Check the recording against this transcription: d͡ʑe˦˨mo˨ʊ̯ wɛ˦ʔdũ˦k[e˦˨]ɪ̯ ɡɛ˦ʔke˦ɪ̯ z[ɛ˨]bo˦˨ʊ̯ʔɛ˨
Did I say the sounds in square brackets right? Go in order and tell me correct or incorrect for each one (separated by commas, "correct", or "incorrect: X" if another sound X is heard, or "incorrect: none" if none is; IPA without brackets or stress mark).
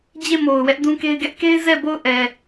incorrect: e˦, incorrect: ɛ˦˨